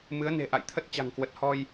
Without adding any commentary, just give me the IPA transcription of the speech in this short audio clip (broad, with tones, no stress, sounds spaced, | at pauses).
m ɨ˨˦ ə̯ n e̤˨˩ ʔ a̰˧˨ j t̪ʰ ə˦˥ t̚ t͡ɕ a̤˨˩ ŋ k w ə˨˩ t̚ h ɔ˧ j